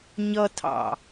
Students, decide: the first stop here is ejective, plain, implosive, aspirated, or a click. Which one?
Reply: aspirated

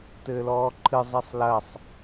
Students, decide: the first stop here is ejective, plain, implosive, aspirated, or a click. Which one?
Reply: plain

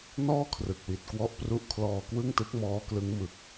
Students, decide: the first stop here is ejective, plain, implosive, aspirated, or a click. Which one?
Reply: aspirated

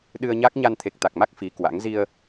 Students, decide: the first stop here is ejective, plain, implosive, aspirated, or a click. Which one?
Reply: implosive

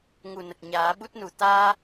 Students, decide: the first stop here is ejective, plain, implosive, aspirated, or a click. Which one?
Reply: plain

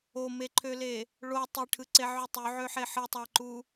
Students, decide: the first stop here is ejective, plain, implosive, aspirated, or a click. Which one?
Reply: click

